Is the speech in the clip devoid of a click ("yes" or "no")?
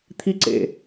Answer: no